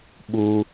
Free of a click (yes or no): yes